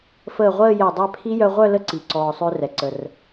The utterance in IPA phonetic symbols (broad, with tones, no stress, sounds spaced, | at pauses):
f əː˧˩ ʁʷ əː˥˧ j ɛ˧˩ dˤ ɛ˥˧ pʰ i˦˥ j œ˧ ʁʷ œ˥˧ l ə˥˧ ǀ i˩ ǀ ɔː˩ sˤ ø˧ r ɛ˩ ǀ ə˩ r